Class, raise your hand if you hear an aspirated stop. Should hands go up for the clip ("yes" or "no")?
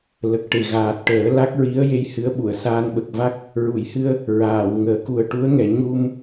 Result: no